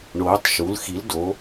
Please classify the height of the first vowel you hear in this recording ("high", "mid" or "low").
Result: mid